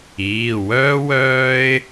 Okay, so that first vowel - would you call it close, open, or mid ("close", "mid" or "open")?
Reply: close